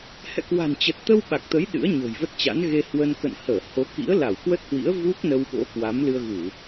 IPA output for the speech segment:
h ɛ̰˧˨ k w a̤˨˩ n t͡ɕ ə˨˩ t̚ t̪ ə˧ w ɓ a˨˩ k̚ t̪ ə˨˦ j ɗ ɨ̰˧˥ ə̯ ɲ o̤˨˩ j v ə˦˥ t̚ t͡ɕ a̰˧˥ n ɣ e˧ h w ə˧ n k ə̰˧˨ n h əː˧˩ h o˨˦ k ḭ˧˥ ə̯ l a˧˩ w k w ə˦˥ t̚ h w ḭ˧˥ ə̯ v u˦˥ k̚ n ə˧ w ɓ o̰˧˥ k w a˨˦ m l ɨ˧ ə̯ ɣ u˧˩˨

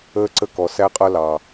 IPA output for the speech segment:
əː˧ ǀ ə˧ k ɔ˨ s æ˧ qʼ ʌ˧ l ɑ˨

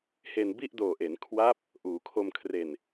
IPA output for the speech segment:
h e˧ n b i˥˩ ʔ d oː˨˩ ʔ e˩˦ n kʰ w a˦˥ p̚ | ʔ uː˩˦ kʰ o˧ m kʰ r e˨˩ n

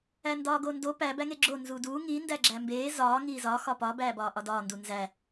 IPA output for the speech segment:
æ n d ɒː ɡ o n d o p æ b æ ŋ e ɡ͡ǁ o n z u d uː ŋ i n d æ ɡ͡ǁ æ m b eː z ɒː ŋ iː z ɒ x ɒ p ɒ b æː b ɒː ʔ ɒ d ɒː n d u n z æ

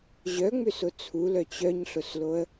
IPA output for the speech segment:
ʑ œ ŋ͡m ʏ s ʊ t͡sʰ u l œ t͡ɕ œ ɲ ɬ ʊ s l o ə̯

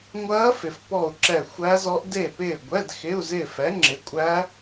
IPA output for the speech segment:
ŋʷ ɐː˦˥ f ɪ˨ f p ɔ˦˨ u̯ ǁ ɛ˦˨ xʷ æ˦˥ z ɔ˦˥ ʔ d e˦˨ p ɪː˦˨ ɡʷ ɛ˧˥˧ d x ɪ˧˥˧ u̯ z ɪ˦˨ f ɛ˨˥ ŋ͡ǁ ɪ˨˥ kʷʼ æ˦˥

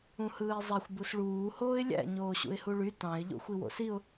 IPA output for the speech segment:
ũ h ɯː ɪ̯ zˤ æ xʷ b u s ɭ uː h oː ɪ̯ lʲ æ̰ ɲ oː ɕ ṵ ɪ̯ h u ɭ y t ɑ̃ ɪ̯ ʎ o̰ xʷ i w o̰ s i ʊ̯

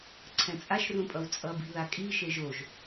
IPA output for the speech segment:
ǀʰ ɛ̃ t͡sʼ a ʃ r ũ pʼ ʌ w t͡sʼ ʌ b i̤ ð a kʼ i ʃ e ʒ o ʒ

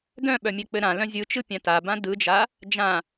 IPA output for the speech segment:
d œ̃ ɓ œ mʲ ɛ k͡p ɘ ɾ ã l œ̃ zʲ ɯ t͡ʃ ɯ pʲ ã t a b ã d ɯ d͡ʒ a | d͡ʒ ã

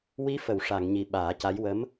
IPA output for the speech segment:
w i˧˥ f ə˨˩˨ w ʂ a˨˩˨ ŋ ɲ i˨˩ ɓ aː˨˩˦ c a˧˥ j w ə˧˥ m

